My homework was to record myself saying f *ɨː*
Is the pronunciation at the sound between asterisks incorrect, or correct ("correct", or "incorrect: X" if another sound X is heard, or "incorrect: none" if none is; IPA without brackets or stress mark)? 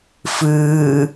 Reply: correct